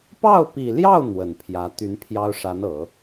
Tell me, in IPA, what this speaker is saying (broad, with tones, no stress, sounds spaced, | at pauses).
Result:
p ɑ˥˩ ʊ̯ p i˨˩ l j ɑ˥˩ ʊ̯ n̪ w ə˨˩ n pʰ j ä˧˥ t̪ y˧˥ n pʰ j ɑ˥ ʊ̯ ʂ a˧˥ n ɤ˨˩˦